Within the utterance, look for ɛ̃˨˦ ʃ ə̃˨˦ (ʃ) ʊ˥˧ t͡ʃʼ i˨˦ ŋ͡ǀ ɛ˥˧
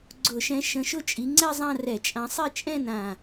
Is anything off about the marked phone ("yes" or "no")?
no